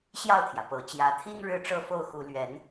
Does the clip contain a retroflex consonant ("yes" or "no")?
yes